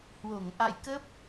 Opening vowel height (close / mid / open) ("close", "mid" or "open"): mid